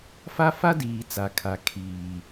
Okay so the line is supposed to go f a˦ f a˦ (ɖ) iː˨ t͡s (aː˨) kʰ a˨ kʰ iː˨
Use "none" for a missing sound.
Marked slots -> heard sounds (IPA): d, a˨

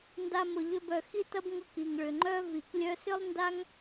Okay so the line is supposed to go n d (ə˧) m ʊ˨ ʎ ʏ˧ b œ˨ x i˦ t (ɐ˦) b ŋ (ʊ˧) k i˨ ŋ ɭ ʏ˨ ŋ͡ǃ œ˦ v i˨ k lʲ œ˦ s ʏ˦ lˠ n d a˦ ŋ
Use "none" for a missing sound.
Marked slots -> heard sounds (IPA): a˧, ɐ˦, ʊ˧

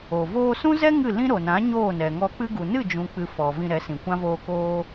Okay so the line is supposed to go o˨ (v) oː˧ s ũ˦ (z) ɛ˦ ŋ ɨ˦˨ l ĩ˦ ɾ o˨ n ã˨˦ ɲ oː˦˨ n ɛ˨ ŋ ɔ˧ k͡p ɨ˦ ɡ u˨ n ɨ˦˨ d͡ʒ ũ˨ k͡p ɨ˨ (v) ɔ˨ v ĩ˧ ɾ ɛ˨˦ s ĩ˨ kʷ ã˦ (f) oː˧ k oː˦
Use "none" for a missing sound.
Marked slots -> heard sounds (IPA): v, z, f, v

